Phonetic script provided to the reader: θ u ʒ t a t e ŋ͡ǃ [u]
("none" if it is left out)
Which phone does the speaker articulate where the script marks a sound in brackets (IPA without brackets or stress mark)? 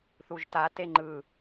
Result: ɯ